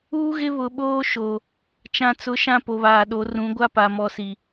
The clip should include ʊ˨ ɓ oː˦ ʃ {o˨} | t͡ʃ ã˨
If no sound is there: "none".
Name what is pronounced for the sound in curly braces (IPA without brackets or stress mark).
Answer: o˨